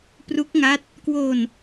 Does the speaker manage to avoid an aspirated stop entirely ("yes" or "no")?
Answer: yes